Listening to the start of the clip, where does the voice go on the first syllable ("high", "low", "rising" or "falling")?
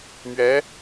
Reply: rising